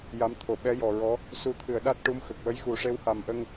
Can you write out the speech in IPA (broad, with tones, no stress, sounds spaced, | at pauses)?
j a˧˥ m t̪ʰ o˨˩ ɓ ɛ˧˥ j ɔ˨˩ ɹ ɔ˧˥ | s u˨˩˦ t̪ʰ ɨ˨˩˨ ə̯ ɗ a˦˥ t̚ ʈ u˧˥ m x ə˨˩ k̚ w ə˧˥ j x u˨˩˦ ʂ e˧˥ w h a˨˩ m ʔ ə˧ ŋ